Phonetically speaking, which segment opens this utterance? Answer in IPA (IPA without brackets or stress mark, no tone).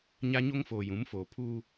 ɲ